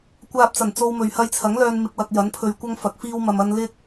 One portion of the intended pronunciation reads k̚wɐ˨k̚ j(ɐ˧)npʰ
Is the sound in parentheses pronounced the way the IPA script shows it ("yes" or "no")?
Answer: no